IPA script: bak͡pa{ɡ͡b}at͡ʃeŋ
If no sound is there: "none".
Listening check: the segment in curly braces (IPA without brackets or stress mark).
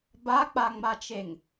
ŋ͡m